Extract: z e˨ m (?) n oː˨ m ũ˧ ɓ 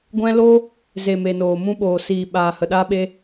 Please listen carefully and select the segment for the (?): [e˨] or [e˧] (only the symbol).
e˨